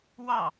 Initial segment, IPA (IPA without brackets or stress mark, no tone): w